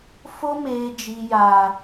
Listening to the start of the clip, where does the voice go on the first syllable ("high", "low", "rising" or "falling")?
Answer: high